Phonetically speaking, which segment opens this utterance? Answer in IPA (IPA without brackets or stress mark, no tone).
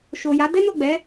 ʃ